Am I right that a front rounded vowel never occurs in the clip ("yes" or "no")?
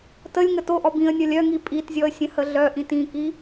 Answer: no